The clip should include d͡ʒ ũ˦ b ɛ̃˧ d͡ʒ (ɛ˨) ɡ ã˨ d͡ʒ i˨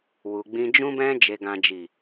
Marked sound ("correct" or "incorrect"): incorrect